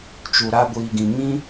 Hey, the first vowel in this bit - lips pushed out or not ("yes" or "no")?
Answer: yes